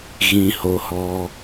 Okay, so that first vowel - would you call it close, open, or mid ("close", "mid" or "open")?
close